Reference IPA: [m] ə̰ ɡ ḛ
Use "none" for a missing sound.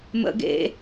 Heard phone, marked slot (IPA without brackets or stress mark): m